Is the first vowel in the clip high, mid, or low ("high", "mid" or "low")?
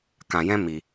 low